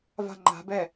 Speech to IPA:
va̤ŋ͡ǃa̤bɛ

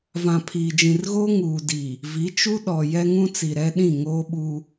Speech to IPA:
vã˨ pʰiː˨d͡ʒĩ˨rɣoː˦ ŋuː˨diː˨ | vi˨˦t͡ʃu˦ ɗɔ˨ jɛ˦ŋũ˦t͡si˨ ɾɛ˦ɗĩ˦˨ ŋoː˦ɓuː˦

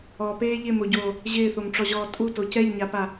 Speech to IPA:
ɔpeː ʎɪmoɟoː | ʑɪːθomʈ͡ʂɔʑɔː tʼuto cɛʎɲapa

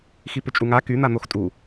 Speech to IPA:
xipʏt͡ʃʼuŋa kyn̪an̪ox tʼu

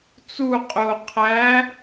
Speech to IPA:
t͡su qʼo qʰæ

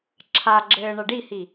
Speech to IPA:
ǁʰaɡ͡ǁɘː ɳɐɖihi

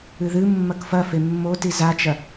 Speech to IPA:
ɨðɨ mːɐkfɐfe mːoti zat͡ʃɐ

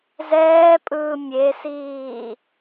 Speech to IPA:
zɛːpʼɯː mʲesiː

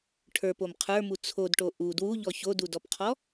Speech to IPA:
ʈʰə˞pom qʰə˞mu t͡sʰodʈo ʔu dwuʎɔ çodudɔpqʰɔ

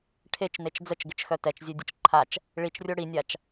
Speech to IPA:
ʈʰet͡ʃnet͡ʃ d͡zət͡ʃɡɪt͡ʃxœ tɛt͡ʃzʲødʲət͡ʃ ǃʰat͡ʃ | ɭit͡ʃrʲo ɽinʲat͡ʃ

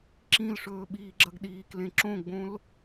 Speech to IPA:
ǁĩlʂɵː ɓiːɡ͡ǁɐɡɗiːklẽ ǁõɡ͡bõl

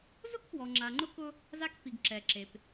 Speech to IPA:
zʊ˦kpwɔ˨ ŋ͡ǁa˨ŋ͡ǃʊ˦kʊ˦ | za˦kpi˨ɡ ǁɛ˨ǁe˨p

